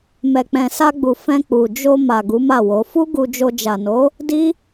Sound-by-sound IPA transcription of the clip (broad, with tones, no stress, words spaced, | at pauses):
mɛ˨ k͡pɛ̃˨sa˧ɡ͡bu˨ fɛ̃˧k͡pu˨ d͡ʒo˧ ma˨ ɡu˨˦ma˦˨wo˨˦ fu˦ɡu˧d͡ʒo˧ d͡ʒa˨no˨˦ | di˦